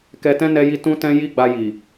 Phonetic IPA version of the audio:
k ɛ˧ t ɛ̃˦ n ɛ˧ j i˧ t ũ˦ t ɛ̃˦ j i˦ ɡ͡b a˧ j i˨

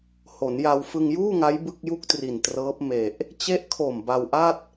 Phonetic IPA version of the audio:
h o˩˦ n j a˧ w f ɯ˧ ŋ j uː˥˩ ŋ a˦˥ j b ɯ˥˩ k̚ j u˥˩ k̚ t r i˨˩ n t r ɤː˦˥ p̚ m e˨˩ ʔ | t͡ɕ e˦˥ ʔ kʰ o˨˩ m b a˧ w ʔ a˥˩ t̚

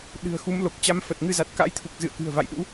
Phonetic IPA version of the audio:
ɗ ɨ̤˨˩ ə̯ x u˨˦ m l o˨˩ k̚ t͡ɕ a˧ m f ə˨˩ t̚ ŋ ɨ˧ z a˨˩ t̚ k a̰˧˥ j t̪ʰ u˨˩ k̚ z ɨ̰˧˨ ə̯ k ɨ̤˨˩ ə̯ v a̰˧˨ j ɗ ṵ˧˥

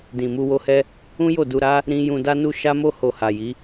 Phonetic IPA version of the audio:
d ĩ˨ m u˧ w o˧ h ɛ˦ | ũ˦ j o˦˨ d u˧ ɾ a˦ | ɾ ĩ˦ j ũ˧ d a˦ n u˦ ʃ a˦ m o˦ h o˧ h a˨ j i˨˦

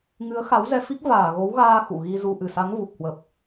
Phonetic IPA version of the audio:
ŋ ɨ˨˦ ə̯ x a˨˦ w z ɛ˧ f i˦˥ k̚ v aː˧˩ ɣ o˨˦ w ɣ aː˧ x ṵ˧˨ ɣ i˧ z u˧ ʔ ɨ˧˩ s a˨˦ ŋ v u˨˩ k̚ h w ə˨˩ p̚

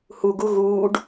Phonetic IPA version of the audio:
h u ɡ u ɣ uː ɖ

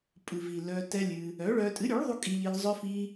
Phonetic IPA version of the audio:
pʼ ɨ˨ v i˨ l œ˧ t ɛ˦ lʲ ɨ˧ | œ˨˦ ɭ œ˧ tʼ ɨ˨˦ ɾʲ u˨˦ ɭ ðˤ u˧ kʼ i˧ ʎ i˧ ʎ zˤ œ˦ f i˦

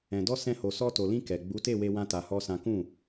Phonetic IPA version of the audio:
ɛ̃˨ d ɔ˧ s ɛ̃˧ h o˨ s ɔ˧ t o˨ l ĩ˧ k ɛ˨ ɡ͡b u˨˦ t e˦˨ w e˧ w ã˦ t a˧ h ɔ˦ s ã˦ k ũ˦˨

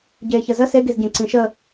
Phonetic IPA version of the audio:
ɟ eː ç ə z ə s e ɡ i z ɟ ẽ ǀ ĩ ʃ ə

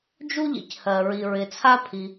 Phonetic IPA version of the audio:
d͡ʒ u˥ ʎ ḭ˩ c h ɜ˩ ɹ i˩ ɹ ɪ˩ t͡sʰ a˥ pʰ i˩

